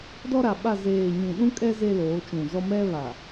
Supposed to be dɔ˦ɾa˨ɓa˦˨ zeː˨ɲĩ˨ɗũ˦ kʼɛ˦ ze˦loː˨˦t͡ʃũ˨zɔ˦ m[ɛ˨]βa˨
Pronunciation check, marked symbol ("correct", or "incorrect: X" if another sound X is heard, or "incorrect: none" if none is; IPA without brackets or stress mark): incorrect: ɛ˦